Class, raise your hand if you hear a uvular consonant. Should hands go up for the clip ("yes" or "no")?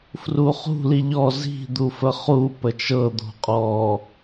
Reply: yes